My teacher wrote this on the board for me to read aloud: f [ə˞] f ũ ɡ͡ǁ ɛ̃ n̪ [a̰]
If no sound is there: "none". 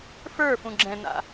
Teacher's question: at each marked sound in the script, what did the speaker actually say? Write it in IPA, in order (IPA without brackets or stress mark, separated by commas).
ə˞, a̰